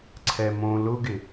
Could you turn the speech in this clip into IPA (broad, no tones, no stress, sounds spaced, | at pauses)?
ǀʰ ɛ m õ l ʊ ɡ ɪ